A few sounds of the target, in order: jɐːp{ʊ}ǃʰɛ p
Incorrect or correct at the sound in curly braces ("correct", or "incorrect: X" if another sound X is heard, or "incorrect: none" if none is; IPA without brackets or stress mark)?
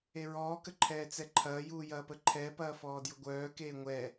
incorrect: ə